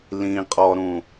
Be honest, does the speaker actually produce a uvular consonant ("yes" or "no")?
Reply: yes